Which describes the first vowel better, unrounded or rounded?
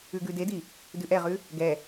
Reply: rounded